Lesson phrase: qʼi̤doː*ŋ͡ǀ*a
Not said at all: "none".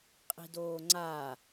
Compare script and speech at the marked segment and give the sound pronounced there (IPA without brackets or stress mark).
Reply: ŋ͡ǀ